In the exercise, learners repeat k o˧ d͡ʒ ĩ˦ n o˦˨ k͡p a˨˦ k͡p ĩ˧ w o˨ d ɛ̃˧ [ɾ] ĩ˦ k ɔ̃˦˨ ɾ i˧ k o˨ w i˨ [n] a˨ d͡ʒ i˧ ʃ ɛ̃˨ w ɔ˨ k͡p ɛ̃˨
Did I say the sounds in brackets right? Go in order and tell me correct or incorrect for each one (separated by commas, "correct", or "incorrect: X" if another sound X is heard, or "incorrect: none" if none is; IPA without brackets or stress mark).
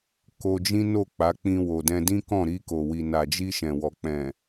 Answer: incorrect: d, correct